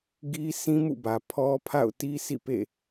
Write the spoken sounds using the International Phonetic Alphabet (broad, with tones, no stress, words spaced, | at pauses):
ɡi˦sʰĩ˦ mṵ˦˨bä˨pʰɔ˦pʰa̰˦˨ʊ̯ ti˦sʰḭ˦˨pḛ˦˨